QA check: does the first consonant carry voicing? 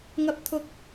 yes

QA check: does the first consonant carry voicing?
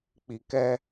no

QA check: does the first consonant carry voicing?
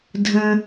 yes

